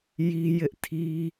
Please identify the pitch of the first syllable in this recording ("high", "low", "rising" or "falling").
high